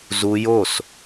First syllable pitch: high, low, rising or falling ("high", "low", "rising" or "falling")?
high